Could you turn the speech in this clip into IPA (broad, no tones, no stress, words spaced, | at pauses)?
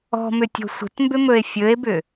ɔ̤mʏtʲɔ̤ sʷə̤tmbʏmɵe̯ fʲɵe̯bʏ